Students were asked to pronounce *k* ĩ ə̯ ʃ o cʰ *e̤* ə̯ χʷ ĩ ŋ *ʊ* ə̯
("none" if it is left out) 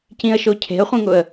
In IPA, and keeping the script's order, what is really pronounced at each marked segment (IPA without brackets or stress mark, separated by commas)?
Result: c, e̤, ʊ